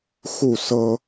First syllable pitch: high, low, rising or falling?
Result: falling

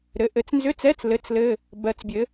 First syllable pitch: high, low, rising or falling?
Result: rising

